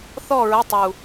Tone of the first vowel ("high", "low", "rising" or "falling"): falling